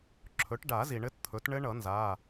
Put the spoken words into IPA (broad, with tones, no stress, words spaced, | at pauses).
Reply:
ǁʰɵ˩˥ʈɖa˨˩˦ zi˩ɳɘ˦˥tt̪ʰɵ˩˥t ɳɘ˦˥ɳʌ˨˩˦nza˩˧˩